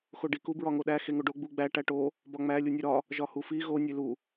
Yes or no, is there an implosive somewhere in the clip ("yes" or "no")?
yes